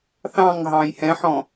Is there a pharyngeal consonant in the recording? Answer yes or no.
yes